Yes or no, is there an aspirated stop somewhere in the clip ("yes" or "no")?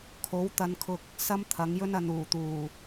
yes